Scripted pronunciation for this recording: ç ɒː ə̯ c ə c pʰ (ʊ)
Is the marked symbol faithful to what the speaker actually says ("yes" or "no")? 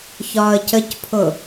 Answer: yes